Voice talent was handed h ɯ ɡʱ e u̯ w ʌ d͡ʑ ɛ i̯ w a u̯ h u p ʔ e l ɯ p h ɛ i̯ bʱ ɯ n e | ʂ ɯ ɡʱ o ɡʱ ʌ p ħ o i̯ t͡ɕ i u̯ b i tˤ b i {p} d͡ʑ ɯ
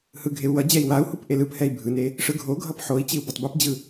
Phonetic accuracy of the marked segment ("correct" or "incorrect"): correct